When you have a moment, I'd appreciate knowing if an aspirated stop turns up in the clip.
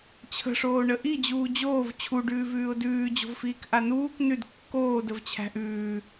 yes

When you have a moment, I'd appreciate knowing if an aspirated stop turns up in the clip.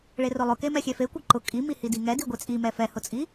no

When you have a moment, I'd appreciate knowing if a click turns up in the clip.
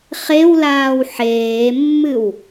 no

